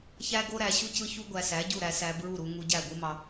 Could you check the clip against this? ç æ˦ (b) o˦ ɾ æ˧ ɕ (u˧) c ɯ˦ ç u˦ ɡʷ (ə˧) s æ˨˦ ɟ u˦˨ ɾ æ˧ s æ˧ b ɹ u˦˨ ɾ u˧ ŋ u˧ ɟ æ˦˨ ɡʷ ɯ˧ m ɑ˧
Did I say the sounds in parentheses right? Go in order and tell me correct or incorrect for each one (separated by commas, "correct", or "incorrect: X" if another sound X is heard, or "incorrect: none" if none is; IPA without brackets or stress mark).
incorrect: ɡ, incorrect: u˦, incorrect: æ˧